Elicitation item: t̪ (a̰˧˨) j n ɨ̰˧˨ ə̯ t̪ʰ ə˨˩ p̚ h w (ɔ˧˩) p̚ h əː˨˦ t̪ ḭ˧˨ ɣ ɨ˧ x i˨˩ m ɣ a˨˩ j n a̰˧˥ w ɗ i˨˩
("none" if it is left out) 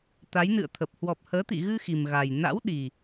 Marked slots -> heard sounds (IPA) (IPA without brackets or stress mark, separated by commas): a˨˦, ɔ˨˩